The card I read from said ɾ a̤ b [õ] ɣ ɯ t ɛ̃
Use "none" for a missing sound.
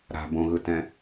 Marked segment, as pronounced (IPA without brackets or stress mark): õ